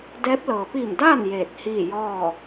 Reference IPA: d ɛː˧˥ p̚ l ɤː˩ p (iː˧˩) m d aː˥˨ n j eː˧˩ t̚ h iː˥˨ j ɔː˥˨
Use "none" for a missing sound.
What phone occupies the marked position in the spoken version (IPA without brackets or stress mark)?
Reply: iː˧˩